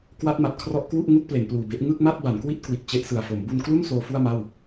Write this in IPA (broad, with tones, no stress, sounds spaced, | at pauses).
k w a˦˥ t̚ m a˨˩ t̚ kʰ r ɔ˦˥ ʔ k w u˥˩ ʔ ŋ u˥˩ k̚ p l e˩˦ n p l uː˨˩ b e˦˥ ʔ ŋ ɯ˥˩ k̚ m a˥˩ t̚ b a˩˦ n k w i˥˩ t̚ k w i˨˩ t̚ t͡ɕ e˦˥ ʔ s ɯ˨˩ a̯ f o˩˦ m b u˧ n k l u˥˩ n s oː˦˥ f u˥˩ a̯ m a˥˩ w